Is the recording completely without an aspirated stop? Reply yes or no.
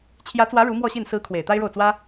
no